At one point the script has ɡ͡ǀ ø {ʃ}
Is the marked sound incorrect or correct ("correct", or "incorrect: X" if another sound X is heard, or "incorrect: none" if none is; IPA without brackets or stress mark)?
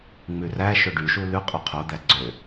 incorrect: none